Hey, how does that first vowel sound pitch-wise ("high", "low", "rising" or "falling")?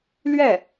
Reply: falling